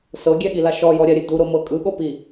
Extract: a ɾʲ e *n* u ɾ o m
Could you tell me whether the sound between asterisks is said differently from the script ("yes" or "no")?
yes